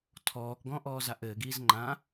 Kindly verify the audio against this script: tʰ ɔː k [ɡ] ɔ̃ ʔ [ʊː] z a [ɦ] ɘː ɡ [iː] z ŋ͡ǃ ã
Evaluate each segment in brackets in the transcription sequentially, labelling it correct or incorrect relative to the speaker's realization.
correct, incorrect: ɔː, incorrect: ʔ, correct

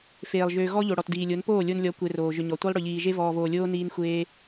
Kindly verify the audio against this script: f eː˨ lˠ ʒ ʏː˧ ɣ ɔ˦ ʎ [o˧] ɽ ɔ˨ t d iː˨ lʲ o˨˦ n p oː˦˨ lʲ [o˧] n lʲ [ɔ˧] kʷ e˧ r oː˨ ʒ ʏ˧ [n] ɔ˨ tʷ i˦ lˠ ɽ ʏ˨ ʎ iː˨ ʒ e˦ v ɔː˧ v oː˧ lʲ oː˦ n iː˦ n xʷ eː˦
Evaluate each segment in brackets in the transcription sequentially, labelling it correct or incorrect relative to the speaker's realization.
incorrect: o˨, correct, incorrect: ɔ˨˦, incorrect: ɲ

